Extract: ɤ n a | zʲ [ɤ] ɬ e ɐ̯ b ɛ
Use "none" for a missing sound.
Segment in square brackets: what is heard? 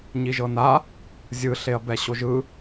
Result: ɯ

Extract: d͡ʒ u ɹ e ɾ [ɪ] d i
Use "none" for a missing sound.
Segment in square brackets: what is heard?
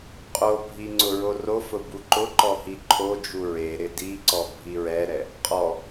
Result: ɪ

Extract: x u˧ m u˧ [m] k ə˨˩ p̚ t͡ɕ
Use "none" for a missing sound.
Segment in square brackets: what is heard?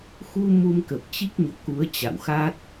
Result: m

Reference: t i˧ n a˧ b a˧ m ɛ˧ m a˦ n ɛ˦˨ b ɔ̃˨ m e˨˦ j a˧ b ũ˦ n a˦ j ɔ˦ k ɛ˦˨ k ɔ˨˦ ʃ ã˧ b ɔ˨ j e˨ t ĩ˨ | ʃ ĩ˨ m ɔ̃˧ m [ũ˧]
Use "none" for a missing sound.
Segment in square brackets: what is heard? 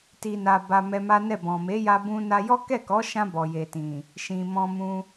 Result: ũ˧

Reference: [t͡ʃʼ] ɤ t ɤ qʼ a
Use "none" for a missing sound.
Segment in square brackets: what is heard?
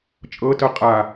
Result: t͡ʃʼ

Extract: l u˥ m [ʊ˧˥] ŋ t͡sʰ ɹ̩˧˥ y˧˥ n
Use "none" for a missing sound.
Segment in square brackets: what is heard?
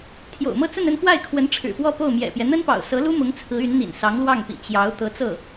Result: ʊ˧˥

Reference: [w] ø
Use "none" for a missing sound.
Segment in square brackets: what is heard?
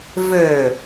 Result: v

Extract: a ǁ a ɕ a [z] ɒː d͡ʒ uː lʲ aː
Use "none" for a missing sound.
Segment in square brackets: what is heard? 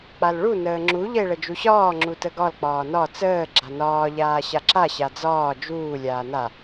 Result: d͡z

